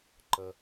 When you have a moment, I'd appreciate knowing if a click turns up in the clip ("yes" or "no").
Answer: yes